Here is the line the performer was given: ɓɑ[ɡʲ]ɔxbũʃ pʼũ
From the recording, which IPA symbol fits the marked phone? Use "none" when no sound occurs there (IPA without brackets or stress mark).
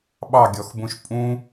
ɡʲ